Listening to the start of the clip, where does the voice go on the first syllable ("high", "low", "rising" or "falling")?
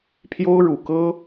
high